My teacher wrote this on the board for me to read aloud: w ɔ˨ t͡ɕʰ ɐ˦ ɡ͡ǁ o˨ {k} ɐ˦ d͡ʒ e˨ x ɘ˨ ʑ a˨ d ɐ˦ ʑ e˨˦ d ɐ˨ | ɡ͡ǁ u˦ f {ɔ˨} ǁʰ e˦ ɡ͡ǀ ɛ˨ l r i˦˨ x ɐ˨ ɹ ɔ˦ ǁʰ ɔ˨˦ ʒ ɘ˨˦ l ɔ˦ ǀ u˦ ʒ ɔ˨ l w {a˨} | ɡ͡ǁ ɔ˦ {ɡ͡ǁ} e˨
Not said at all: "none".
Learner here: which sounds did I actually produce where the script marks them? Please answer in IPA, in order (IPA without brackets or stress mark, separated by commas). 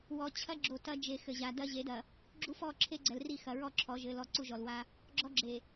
t, ɔ˦, a˦, ɡ͡ǁ